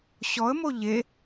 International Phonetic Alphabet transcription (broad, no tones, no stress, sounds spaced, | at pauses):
ɕ ɔ ə̯ m o ʎ e